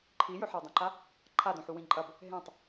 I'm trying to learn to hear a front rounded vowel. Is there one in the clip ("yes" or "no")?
no